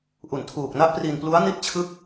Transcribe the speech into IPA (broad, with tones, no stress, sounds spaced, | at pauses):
ʔ u˨˩ n tʰ uː˨˩ k̚ n a˦˥ ʔ p r i˧ n p l u˦˥ a̯ n i˥˩ t̚ t͡ɕʰ ɯ˥˩ k̚